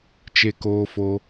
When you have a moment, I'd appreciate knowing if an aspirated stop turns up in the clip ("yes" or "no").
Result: no